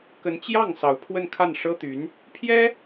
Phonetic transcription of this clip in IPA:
k ə˧˥ n t͡ɕ j ɑ˥˩ ŋ s ɑ˧˥ ʊ̯ pʰ w ə˥˧ n kʰ a˥˩ n ʂ ɤ˥ t̪ y˧˥ n | pʰ j ɛ˥

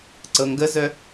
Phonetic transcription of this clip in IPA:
ǀ ɤ ŋ ɡ ə z œ

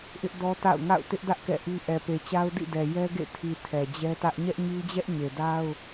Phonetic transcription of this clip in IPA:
ʔ ɪ˦ ʔ d ɔ˦ t a̰˦˨ ʊ̯ ŋ a̰˦˨ ʊ̯ t ɪ˦ ʔ d ä˦ ʔ k ɛ̰˦˨ ʔ i˦ ʔ ɛ˨ p e˨ t͡ɕ a˦ ʊ̯ d ḭ˦˨ d ɛ˨ j ɛ˦ ɡ ḛ˦˨ tʰ i˨ tʰ ɛ˨ d͡ʑ ɛ˦ t ä˦ ʔ ɲ ɛ˦ ʔ ɲ i˦ d͡ʑ ɛ˦ ʔ ɲ e˨ d a˦ ʊ̯

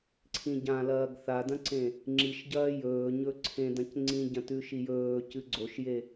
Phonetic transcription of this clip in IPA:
ǀʰ ĩ ɟ ã l ɐː ɡ θ a d ɐ̃ ǀ ẽ | ŋ͡ǁ i ʃ ɟ ɐː j ɵː ɲ ɵ ǀʰ ẽ d ɐ̃ c ŋ͡ǀ ĩ ɟ ɐ̃ t ʉ ʃ i j ɵː c ɨ ɡ͡ǀ o ʃ j e

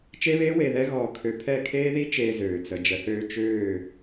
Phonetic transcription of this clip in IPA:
t͡ʃ e˦ β eː˦ w e˨ ð ɛ˦ ɣ ɔː˨ kʰ ø˨ pʰ ɛ˦˨ kʰ eː˦ ð i˦ t͡ʃ eː˨ z øː˨ t͡s ə˨ d͡ʒ ə˨ θ øː˦ t͡ʃ øː˦˨

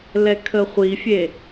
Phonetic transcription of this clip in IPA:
l ɛ kʰ ə χʷ i fʲ e

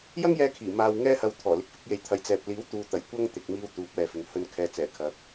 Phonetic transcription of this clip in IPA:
j ɐ˥ ŋ j ɛː˧ kʰ iː˨˩ m aː˧ w ŋ ɛː˥ h ɐ˧ w t̪ʰ ɔː˨˩ l ɪ˨ k̚ f ɪ˧ k̚ j e˨ j t̪ʰ ɐ˨ j t͡s ɛː˨ p̚ l iː˨˥ w t̪ uː˨ t̪ ɐ˨˩ j kʷ ɐ˥ ŋ t̪ ɪ˨ k̚ m iː˧ w t̪ uː˨˥ p̚ ɛː˨ f ɪ˨ ŋ h ɵ˧ n kʰ ɛː˨ t͡s ɛː˨˩ kʰ ɐ˨˥ k̚

